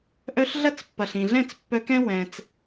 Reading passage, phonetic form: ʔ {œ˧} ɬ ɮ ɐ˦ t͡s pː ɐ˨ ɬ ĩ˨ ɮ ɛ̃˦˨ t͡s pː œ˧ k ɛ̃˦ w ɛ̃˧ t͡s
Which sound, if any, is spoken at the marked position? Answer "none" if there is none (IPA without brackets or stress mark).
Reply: œ˧